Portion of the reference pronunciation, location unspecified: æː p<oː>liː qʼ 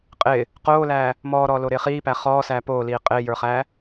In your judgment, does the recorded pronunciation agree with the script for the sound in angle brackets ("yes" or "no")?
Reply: yes